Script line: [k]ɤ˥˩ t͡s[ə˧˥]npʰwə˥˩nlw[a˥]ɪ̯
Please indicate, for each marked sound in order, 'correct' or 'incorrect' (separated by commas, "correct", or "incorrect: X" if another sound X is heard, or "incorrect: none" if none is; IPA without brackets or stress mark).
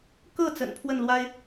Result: correct, incorrect: ə̰˨˩, correct